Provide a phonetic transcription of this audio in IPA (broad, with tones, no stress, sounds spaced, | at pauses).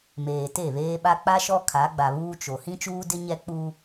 m eː˨ t e˦˨ β eː˦ ɓ a˦ k͡p a˦ ʃ ɔ˦ kʰ a˨˦ ɡ͡b a˨ β uː˦ t͡ʃ o˨ h ĩ˦ t͡ʃ uː˦ d ɪ˦ ɲ ɛ˦ k͡p uː˦